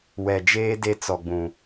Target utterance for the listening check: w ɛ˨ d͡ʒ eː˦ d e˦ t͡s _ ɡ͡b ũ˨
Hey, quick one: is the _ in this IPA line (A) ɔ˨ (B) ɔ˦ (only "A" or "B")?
A